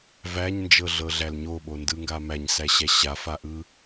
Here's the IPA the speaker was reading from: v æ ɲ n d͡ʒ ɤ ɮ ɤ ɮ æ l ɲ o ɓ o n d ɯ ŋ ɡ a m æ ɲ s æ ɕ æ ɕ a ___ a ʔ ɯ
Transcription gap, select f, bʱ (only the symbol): f